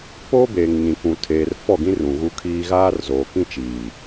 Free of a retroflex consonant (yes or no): yes